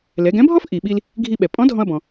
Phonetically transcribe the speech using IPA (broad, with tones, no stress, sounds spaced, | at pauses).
l ɛ˩˧ ɡ ɛ̃˧˥ bʱ ɔ˥ f ʔ i˩ ɓ i˧ l | ɡʱ i˧ ɓ ɛ˩ pʼ ɔ̃˧˥ dʱ ɔ̃˧ ɐ̯ b ɔ̃˩